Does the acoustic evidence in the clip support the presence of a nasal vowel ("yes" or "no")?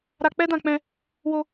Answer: yes